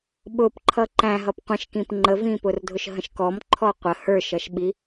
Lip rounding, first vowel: rounded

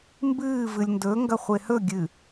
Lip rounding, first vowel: unrounded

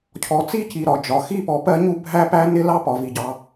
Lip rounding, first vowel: rounded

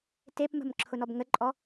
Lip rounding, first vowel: unrounded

